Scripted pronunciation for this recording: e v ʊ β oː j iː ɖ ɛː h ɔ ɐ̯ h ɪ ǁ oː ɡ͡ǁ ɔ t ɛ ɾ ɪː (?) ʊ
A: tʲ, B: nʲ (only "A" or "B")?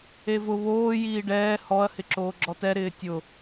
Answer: A